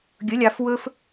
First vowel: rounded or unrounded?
rounded